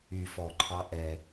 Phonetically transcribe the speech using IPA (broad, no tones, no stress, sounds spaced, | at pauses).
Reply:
y f ɔ ǃʰ ɑ ʔ ɛ